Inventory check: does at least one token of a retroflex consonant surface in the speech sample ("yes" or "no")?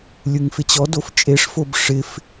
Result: yes